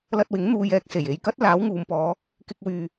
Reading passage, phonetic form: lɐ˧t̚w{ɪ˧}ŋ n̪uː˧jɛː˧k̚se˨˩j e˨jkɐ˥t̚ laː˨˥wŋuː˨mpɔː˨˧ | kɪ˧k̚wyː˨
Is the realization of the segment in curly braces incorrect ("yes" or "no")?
yes